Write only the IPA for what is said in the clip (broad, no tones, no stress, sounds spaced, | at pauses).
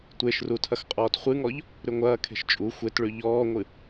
tʷ e ʃ r u tʰ ɐ x qʼ ɔː t χʷ ɨ ŋ ɔ ʎ | ɾ ʉ ŋʷ ɐː kʰ e̤ ʃ t͡ʃʼ u xʷ e t ɭ ʉ ʎ ɔː ŋʷ ɨ